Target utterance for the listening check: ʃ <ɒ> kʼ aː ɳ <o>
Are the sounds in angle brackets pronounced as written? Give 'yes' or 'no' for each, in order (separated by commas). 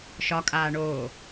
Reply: yes, no